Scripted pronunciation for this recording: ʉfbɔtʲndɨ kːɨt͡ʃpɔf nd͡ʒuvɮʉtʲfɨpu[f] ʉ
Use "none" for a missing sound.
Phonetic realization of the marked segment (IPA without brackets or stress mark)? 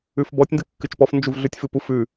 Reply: f